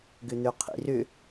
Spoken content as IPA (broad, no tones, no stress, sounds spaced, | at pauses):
ɡ ʏ n̪ ø qʰ ḭ r ʏ